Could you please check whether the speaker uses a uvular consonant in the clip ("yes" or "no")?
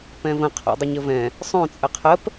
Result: yes